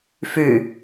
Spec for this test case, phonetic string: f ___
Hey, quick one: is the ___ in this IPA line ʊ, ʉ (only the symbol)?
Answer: ʉ